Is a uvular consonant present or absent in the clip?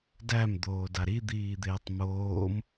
absent